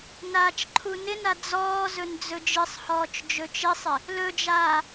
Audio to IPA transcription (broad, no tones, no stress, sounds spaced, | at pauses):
n aː t͡ʃ ǃʰ u n ɪ n a d͡z ɔː z ɵ n d͡z ɵ d͡ʒ ɨ sˤ h ɔː t͡ʃ d͡ʒ ɵ t͡ʃ ɪ sˤ ɪ | l ɵ d͡ʒ aː